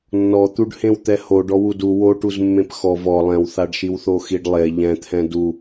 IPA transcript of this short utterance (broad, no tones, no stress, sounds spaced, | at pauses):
nː ɔ t̪ u ɖ h ẽ w t̪ ɛ h o ɖ ɔ w u d u w o ʈ u z mː ẽ p x ɔ v ɔ lˠ ɛ̃ w θ a ɖ ʃ i w θ o x i ɖ lˠ e ʎ ɛ̃ t̪ʰ ɛ̃ d u